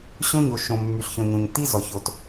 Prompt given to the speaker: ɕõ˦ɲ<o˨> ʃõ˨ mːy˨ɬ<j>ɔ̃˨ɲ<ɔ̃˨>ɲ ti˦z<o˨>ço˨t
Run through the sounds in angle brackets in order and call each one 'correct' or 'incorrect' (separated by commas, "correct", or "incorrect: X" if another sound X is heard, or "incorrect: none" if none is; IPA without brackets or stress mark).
correct, incorrect: ç, incorrect: õ˨, incorrect: ɔ˨